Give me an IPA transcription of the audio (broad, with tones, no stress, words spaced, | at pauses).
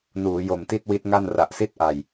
nuː˩˦jo˨˩mti˥˩t̚ wi˦˥t̚ŋa˥˩n ra˨˩ʔsi˥˩t̚ ʔa˨˩j